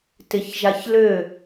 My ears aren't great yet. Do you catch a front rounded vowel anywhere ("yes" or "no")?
yes